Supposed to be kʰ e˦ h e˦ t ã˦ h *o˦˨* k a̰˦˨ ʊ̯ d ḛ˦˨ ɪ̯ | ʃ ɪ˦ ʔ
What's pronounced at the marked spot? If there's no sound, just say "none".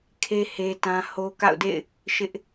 o˦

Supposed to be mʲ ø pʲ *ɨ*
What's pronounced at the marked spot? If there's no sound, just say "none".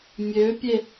e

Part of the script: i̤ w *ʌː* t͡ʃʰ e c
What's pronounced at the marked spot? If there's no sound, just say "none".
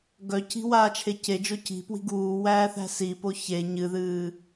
aː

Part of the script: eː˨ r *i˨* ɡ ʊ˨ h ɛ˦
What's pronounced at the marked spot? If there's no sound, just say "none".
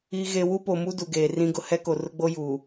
ĩ˨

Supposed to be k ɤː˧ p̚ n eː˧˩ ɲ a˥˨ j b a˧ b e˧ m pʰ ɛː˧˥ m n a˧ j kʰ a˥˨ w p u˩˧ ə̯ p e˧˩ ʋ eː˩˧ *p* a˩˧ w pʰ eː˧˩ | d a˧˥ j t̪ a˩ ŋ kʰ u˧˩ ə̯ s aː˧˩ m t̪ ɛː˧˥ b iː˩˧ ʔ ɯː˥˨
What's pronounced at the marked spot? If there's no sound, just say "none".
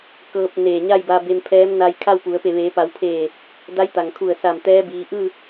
p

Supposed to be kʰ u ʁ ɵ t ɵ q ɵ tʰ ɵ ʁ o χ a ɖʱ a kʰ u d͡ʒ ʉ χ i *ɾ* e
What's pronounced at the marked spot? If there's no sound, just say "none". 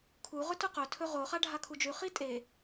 tʼ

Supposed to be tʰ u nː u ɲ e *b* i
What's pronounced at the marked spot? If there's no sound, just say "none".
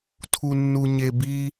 b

